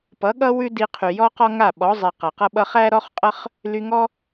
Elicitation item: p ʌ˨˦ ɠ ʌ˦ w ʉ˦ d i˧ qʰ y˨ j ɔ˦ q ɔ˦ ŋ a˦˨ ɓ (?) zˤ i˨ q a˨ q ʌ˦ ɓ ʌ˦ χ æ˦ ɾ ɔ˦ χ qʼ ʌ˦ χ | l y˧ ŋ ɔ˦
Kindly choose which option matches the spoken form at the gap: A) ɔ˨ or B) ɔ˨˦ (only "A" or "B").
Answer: B